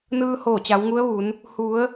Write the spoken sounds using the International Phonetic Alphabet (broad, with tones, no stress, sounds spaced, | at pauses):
n ɯː˧ h oː˧˩ t͡ɕ a˩˧ w ŋ u˧˥ ə̯ ʋ u˩˧ n | h u˩˧ ə̯